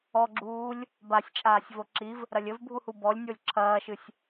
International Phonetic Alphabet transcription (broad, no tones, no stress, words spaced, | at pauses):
ɔɡ͡ǁuːlʲ | basʲt͡ʃʼaːsʲ voǁiv | ɾɐlʲɘvbʱuhu bɔlʲnʲolʲ ǁʰɐːʃɨsʲ